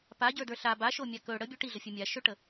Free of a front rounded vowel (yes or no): yes